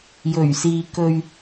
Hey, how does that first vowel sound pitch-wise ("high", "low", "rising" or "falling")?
low